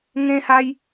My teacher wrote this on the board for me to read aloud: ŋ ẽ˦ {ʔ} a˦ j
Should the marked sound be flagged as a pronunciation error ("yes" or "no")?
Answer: yes